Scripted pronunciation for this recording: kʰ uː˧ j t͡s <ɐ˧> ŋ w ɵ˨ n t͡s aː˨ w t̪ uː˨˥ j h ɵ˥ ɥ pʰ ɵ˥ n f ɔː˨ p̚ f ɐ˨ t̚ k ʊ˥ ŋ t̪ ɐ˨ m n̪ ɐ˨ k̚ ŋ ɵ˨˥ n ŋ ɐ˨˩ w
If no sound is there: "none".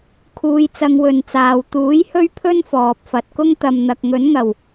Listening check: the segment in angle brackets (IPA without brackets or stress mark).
ɐ˧